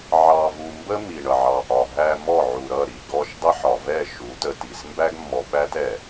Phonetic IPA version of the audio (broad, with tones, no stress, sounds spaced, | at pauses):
ʕ ɑ˨ v u˨ m b ə˦ m i˨ ɳ ʌ˨ ʕ ɑ˨ ʔ ɒ˨ ɦ æ˨ m ɔ˦˨ ʕ u˨ ɾ ʌ˦˨ ɾ i˨ ɡ ɔ˦ ʃ dˤ ə˦ ħ ɒ˨ v ɛ˦˨ ʃ u˨˦ t ə˨ t i˨ s m b æ˦ ɡ mː ɔ˨ ɓ æ˦ t ɛ˨